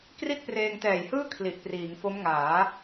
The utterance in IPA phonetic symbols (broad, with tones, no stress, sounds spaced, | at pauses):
k r i˥˩ t̚ p r eː˧ ŋ t ɛː˨˩ j h ɯː˥˩ kʰ l i˨˩ ʔ p r iː˩˦ ŋ f o˦˥ m ŋ aː˩˦